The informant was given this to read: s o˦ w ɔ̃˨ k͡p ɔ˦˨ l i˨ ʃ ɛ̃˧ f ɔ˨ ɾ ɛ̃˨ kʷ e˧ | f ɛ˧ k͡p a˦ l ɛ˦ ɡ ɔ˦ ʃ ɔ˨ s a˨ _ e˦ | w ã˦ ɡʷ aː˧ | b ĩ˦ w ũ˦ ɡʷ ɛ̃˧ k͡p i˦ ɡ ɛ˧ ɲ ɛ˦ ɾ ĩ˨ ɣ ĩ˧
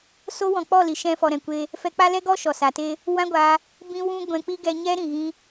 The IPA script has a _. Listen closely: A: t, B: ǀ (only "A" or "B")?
A